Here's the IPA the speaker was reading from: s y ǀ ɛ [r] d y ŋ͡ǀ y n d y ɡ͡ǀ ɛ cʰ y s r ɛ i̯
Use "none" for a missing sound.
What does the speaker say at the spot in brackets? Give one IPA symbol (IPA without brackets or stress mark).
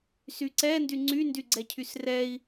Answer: n